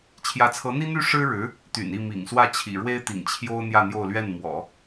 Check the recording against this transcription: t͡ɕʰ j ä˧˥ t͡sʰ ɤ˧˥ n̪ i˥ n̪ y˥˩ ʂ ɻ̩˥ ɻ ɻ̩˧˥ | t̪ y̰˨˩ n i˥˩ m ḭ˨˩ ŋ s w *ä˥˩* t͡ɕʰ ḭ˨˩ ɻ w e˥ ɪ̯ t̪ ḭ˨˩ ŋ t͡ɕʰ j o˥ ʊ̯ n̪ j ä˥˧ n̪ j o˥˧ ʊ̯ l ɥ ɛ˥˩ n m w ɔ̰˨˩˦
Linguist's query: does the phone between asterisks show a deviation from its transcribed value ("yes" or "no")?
no